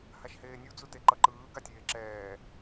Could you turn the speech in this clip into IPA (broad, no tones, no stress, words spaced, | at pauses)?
haʃheːnʲu d͡zuteǃʌǃɯː ɡatʲeːǁɛː